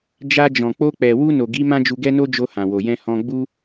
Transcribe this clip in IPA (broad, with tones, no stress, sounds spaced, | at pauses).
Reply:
d͡ʒ a˧ d͡ʒ ɔ̃˨ k͡p o˧ k͡p ɛ˨ w u˧ n o˨ ɡ i˨˦ m ã˦ d͡ʒ u˧ ɡ ɛ˦ n o˦ d͡ʒ o˧ h ã˨ w o˨ j ɛ̃˧ h ɔ̃˧ ɡ͡b u˧